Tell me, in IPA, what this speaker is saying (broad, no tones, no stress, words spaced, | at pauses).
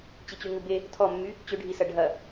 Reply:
t͡ɕit͡ɕyŋube | tʰɔmːy | t͡ɕʏɖʱisɐ ɖʱɐ